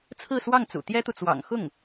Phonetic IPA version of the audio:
t͡sʰɹ̩˥˧swɑ˥˩ŋt͡sṵ˨˩ t̪jɛ˥t̪u˨ t͡swɑ̰˨˩ŋ xʊ˥˩ŋ

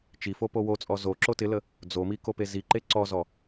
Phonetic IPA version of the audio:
t͡ʃifo powot͡sʼɔ zo ǁotɪlə | d͡zomi kopeziǃe ǀɔzɔ

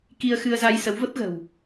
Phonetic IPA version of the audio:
ki˧ə̯xɨ˧ə̯za˧j sə˨˦wvə˦˥p̚ɣə̤˨˩w

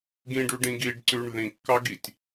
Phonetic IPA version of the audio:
ɡĩɖʉɖĩ ɡiɖǀʉɳ ðĩkːɑɡitʲ

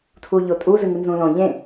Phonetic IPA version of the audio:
tʰuʎotʼu zɨŋɨnzũlõ ʎẽ

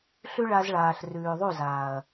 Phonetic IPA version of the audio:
ɬʉ˦ɭa˧z ɭaː˨ɬ rʉː˨ðˤu˦˨zaː˨ɐ̯

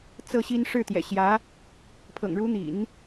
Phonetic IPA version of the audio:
t͡sɤ˥˩ɕi˥n ʂɻ̩˥˩t̪jɛ̰˨˩ɕjä˧˥ | pʰɤ̰˨˩ŋɻu˧˥n̪ḭ˨˩˦n

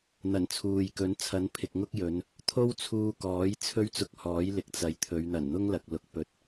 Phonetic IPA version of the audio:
n̪ɐ˨˩nt͡sʰuː˨jkɵ˨˥n t͡sʰɐ˨˥npʰɪ˨k̚ŋʊ˥k̚jɵ˨˧n | t̪ʰo˥wt͡sʰuː˧kɔː˨˥j t͡sʰɵ˥ɥt͡sʊ˧k̚ hɔː˨˥jlɪ˨k̚t͡sɐ˨jt̪ʰɵ˨˧ɥ n̪ɐ˨˩nn̪ʊ˥ŋlɐ˨k̚ lʊ˨k̚ pɵ˧t̚

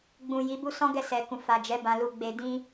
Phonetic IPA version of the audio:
ɡ͡bũ˨ ji˨˦bu˦ sɔ̃˦ɡɛ˦˨sɛ˨kũ˨ fa˨d͡ʒɛ˨˦ bã˧lu˧ ɡ͡be˧dĩ˦

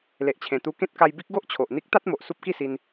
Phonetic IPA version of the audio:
le˨ʔt͡ɕʰẽ˨˩t̪u˧ kẽ˦t̚ka˧j bi˦k̚ɡo˦ʔt͡ɕʰo˨ʔ n̪i˦k̚t̪a˦t̚mo˨ʔ su˦p̚ki˥˧si˧n

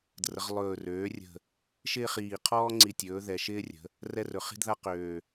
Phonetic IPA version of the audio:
drə˩˧ʁlˠɵː˨˩ røː˩˧rʲə̤˨˩ | ʃɪː˦χiː˨˩ qʰɔː˦ŋ͡ǀi˨˩tʲɵː˩˧ ðɛ˨˩ʃɪː˦rʲə̤˩˧ | rɛ˦rɵ˩˧χi̤˦dða˦ qøː˨˩

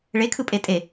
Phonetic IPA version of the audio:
ɭekʰɯpʼe tʼe

